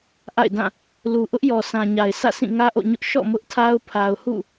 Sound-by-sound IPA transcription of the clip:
ʔ a̰˦˨ ɪ̯ d ã˦˨ | l u˨ ʔ ʊ˦ ʔ j ɔ˨ s ã˨ ɲ a˨ ɪ̯ s ä̰˦˨ sʰ ĩ˦˨ ŋ ä˦ ʔ o̰˦˨ ɲ ʊ˦ ʔ ʃ ɔ̰˦˨ m ʊ˦ ʔ tʰ a˦ ʊ̯ pʰ a˨ ʊ̯ h ṵ˦˨

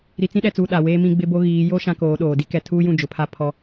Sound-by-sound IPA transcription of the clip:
ɾ i˨ t͡s ĩ˦ ɗ ɛ˨ t͡s uː˨ ɗ a˨ w eː˦ m ĩ˦ ɡ͡b ɪ˦ b o˦ ɣ iː˨˦ j o˦ ʃ ã˦ k oː˨˦ ɗ oː˨ d i˦ k ɛ˨ tʰ uː˦ j ũ˦˨ d͡ʒ ʊ˨ pʰ a˦ pʰ ɔ˦

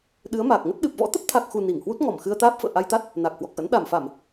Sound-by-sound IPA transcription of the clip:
ɗ ɨ˨˦ ə̯ m aː˨˩ k̚ ŋ ə˦˥ t̚ ɗ ɨ˨˩ p̚ v ɔ̰˧˥ t̪ ə˦˥ p̚ t̪ʰ a˨˩ k̚ x u˨˩ n i˧˩ ŋ h w u˦˥ t̚ ŋ ɔ˧˩ m x ɨ˧ ə̯ t̪ aː˦˥ p̚ f ə̰ː˧˨ ʔ a˧ j t̪ a˦˥ t̚ | n a˨˩ k̚ h w ɔ˨˩ k̚ ʔ ə̰˧˥ n ɗ a˧˩ m f a˧˩˨ m

